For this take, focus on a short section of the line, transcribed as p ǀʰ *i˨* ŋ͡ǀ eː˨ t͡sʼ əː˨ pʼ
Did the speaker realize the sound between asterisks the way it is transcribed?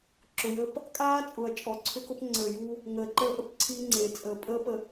no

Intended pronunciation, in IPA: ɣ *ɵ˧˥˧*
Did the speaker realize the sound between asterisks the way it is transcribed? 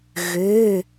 no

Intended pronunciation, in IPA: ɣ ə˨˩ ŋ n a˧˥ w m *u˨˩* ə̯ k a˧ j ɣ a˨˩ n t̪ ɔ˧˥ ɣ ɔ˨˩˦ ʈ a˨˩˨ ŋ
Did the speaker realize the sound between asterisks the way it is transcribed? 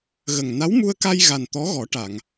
no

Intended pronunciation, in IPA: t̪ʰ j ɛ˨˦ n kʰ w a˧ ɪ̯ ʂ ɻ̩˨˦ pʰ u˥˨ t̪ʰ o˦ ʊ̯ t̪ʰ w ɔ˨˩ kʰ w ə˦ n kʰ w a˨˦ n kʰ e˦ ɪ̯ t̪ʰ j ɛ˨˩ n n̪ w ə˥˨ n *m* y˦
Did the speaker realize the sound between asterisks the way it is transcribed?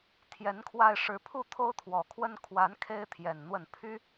no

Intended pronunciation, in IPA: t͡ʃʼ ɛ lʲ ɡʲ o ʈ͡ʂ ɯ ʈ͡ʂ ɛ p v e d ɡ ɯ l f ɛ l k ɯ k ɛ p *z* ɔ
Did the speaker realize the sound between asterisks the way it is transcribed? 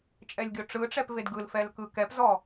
yes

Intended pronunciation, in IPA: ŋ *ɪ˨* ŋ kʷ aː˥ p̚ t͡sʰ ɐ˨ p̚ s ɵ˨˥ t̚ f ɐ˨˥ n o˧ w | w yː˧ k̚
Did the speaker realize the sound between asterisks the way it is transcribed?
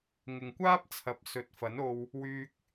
yes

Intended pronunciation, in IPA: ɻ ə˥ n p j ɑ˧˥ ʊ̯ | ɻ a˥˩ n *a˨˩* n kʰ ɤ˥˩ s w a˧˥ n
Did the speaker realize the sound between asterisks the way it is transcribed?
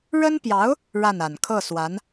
yes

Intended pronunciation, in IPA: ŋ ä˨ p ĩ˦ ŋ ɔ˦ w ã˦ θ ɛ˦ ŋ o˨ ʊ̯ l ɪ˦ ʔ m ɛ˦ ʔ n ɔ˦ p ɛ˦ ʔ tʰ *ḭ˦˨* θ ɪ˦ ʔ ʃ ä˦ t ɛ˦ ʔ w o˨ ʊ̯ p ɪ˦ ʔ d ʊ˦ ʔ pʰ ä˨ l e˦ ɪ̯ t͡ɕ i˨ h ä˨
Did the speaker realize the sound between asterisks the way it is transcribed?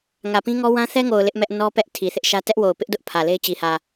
no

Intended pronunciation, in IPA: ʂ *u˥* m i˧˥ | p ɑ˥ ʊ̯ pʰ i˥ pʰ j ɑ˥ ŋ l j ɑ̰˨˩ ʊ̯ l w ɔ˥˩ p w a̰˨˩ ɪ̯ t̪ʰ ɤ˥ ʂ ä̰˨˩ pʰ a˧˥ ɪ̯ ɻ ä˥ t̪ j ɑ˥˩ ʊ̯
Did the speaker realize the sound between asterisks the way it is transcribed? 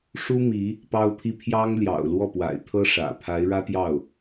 yes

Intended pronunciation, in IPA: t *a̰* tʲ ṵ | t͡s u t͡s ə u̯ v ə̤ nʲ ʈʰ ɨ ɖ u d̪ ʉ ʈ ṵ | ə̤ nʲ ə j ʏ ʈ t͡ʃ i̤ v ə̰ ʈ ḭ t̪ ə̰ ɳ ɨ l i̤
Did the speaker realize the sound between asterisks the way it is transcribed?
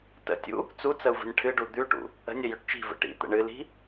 no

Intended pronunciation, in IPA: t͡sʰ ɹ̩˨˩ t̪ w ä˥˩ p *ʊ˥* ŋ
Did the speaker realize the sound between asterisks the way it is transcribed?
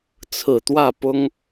yes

